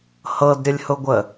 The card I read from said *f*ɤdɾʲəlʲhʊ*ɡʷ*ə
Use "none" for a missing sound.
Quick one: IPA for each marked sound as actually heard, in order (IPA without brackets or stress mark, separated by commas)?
h, ɡʷ